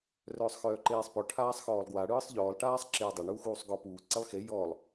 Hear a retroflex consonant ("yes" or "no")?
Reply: yes